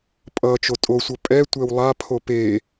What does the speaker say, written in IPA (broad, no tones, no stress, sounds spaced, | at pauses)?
pʼ ʌ t͡ʃ o tʼ o sʷ ʌ pʼ ɛ tʷ e w lˠ a pʰ o p e